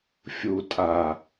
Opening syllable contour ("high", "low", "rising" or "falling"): low